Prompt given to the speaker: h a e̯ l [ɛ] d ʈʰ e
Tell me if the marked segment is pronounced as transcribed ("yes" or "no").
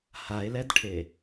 yes